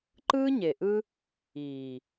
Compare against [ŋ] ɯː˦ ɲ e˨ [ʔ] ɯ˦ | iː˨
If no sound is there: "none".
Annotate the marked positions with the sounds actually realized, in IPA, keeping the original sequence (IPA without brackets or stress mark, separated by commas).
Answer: ǃ, ʔ